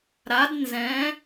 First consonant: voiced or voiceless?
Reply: voiced